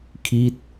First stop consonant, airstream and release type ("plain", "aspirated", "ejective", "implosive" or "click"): aspirated